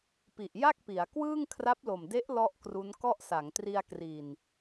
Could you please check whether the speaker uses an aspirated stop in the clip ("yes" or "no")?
yes